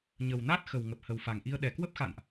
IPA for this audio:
ɲ ə˨˩ w n a˦˥ t̚ x ə˨˩ w ŋ ə˨˩ p̚ h ə˨˩ w f a˨˩ ŋ ʔ i˧ ə̯ ɗ ɛ˨˩ k w ə˦˥ p̚ x a̰˧˨ n ʔ

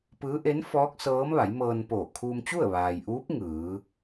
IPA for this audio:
p ɯː˧˥ ʔ e˧˥ n f ɔː˧˥ k̚ s ɤː˧˥ m ʋ a˩˧ j m ɤː˧ n p oː˧˩ kʰ uː˧ m t͡ɕ u˥˨ ə̯ ʋ aː˩ j ʔ uː˧˥ p̚ ŋ ɯː˩˧

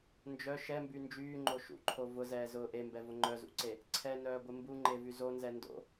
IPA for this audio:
n d͡ʒ œ ʃ ɛ m b y n d͡ʒ yː ŋ͡ǃ o ʃ ṵ ǃʰ o v ʊ z ɛː z ʊː ʔ e m b ɛ v ʊ ŋ͡ǃ œ z ṵ ǀ e | ǀʰ ɛ n œː ɡʷ ɪ m b u ŋ͡ǃ e v y z o n z ɛ n d o̰

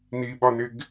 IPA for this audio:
n i ɓ ɒ n ɪ ɡ

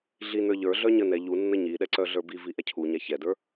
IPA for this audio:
ɮ i n ə˞ ʎ ə˞ ɮ œ ɲ ə n ɛ ʎ u nː ə ɲ i ɗ ɛ ǀ œ ɮ ə˞ b i v i ʔ ɛ cʰ u ɲ a ç ɛ d ə˞

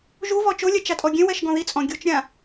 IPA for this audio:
ʒ u v ɔ t͡ʃ o lʲ ɛ t͡ʃ a tʼ ɔ ɡʲ ẽ w ɛ ʃ ɡ ɔ̃ ð i t͡sʼ ɔ̃ ɡʲ u t͡ʃ ɾʲ ã

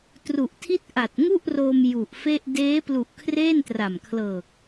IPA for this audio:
t r u˨˩ ʔ tʰ i˥˩ t̚ ʔ a˨˩ t̚ ŋ u˥˩ ʔ r oː˧ m j u˨˩ ʔ f e˥˩ ʔ d eː˦˥ p l u˨˩ ʔ kʰ r eː˥˩ n t r a˨˩ m kʰ l ɤː˨˩ k̚

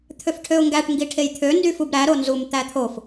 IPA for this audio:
t̪ʰ ø f ʈʰ ø ʊ̯ ŋ ɡ æ ʈ ŋ ɡ i ʈʰ e j t̪ʰ ø n d y f u b ɾ æ ɾ o n z u m t̪ æ t̪ʰ o f

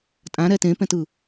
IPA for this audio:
tʼ ã ɾ ɛ t ẽ p ɛ̃ t ɯ

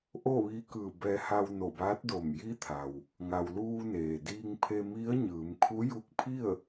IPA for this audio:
ʔ o˥˨ ʋ iː˧˥ k ɯː˧˩ b ɛː˧ h a˧ w n o˧˩ b aː˧˥ t̚ d o˧˩ m j i˧˥ t̪ʰ a˩ w | ŋ a˩ w l uː˧ n eː˩ d iː˧ ŋ pʰ e˧ m i˧˥ ə̯ ɲ ɯː˩˧ m kʰ u˧˥ j u˧˥ k̚ pʰ i˥˨ ə̯

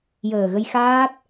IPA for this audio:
j əː˨˩ ɣ ə˧ j x aː˦˥ t̚

